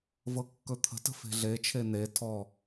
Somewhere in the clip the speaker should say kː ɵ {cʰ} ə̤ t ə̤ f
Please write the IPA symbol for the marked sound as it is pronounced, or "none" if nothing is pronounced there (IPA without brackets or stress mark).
t̪ʰ